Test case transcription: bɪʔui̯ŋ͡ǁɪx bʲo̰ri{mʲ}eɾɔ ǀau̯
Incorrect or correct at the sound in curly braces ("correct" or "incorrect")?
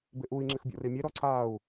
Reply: correct